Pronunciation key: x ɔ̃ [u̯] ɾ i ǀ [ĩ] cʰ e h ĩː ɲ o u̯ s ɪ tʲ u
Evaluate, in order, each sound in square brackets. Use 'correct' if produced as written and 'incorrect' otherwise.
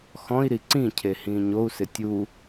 incorrect: i̯, correct

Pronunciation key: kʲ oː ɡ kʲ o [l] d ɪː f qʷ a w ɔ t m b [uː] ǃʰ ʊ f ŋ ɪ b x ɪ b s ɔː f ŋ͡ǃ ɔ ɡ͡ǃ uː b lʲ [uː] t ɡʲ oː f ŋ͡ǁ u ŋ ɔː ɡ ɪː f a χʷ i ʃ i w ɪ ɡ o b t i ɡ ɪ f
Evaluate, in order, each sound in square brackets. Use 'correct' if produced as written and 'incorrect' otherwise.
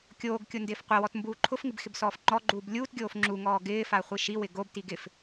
incorrect: n, correct, correct

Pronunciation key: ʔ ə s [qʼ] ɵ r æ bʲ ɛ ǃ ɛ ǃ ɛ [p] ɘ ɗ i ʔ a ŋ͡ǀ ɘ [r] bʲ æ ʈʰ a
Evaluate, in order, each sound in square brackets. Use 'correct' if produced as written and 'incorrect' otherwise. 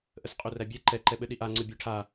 correct, incorrect: ɓ, incorrect: none

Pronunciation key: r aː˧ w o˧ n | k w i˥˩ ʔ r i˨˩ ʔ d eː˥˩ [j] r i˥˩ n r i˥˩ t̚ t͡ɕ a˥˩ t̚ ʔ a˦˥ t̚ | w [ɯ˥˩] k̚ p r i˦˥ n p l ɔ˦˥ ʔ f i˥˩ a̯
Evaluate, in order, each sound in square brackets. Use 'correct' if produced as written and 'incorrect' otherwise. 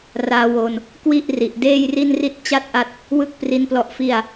correct, correct

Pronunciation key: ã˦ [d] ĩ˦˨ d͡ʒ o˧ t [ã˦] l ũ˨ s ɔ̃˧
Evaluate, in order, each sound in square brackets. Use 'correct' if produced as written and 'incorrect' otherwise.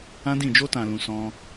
correct, incorrect: ã˨

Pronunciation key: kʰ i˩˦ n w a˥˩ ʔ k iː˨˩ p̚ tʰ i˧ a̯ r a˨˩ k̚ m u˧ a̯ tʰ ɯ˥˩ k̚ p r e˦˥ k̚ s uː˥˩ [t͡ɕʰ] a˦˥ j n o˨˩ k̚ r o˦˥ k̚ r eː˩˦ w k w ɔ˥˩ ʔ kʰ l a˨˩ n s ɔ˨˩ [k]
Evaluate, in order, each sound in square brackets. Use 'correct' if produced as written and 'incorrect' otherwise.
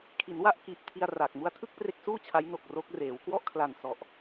correct, incorrect: ʔ

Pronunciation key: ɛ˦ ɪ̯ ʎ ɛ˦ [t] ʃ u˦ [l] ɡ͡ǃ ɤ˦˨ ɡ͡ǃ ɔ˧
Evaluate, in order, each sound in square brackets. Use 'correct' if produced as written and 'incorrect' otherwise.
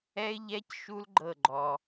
incorrect: c, correct

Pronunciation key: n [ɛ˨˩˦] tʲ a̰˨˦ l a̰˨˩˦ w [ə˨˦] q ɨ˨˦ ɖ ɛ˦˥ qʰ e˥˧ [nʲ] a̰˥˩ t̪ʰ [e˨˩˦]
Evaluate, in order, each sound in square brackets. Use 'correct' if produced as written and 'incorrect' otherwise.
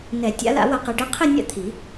correct, correct, correct, incorrect: i˨˩˦

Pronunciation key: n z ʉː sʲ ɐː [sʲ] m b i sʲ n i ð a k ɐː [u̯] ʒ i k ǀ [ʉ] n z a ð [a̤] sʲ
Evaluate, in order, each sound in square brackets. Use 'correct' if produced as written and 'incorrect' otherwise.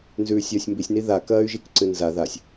correct, incorrect: y̯, incorrect: ɨ, incorrect: a

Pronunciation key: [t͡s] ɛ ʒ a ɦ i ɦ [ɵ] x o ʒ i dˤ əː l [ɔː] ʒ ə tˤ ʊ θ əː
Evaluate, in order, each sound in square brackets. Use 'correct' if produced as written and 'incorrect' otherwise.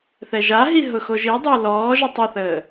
incorrect: θ, incorrect: ʊ, correct

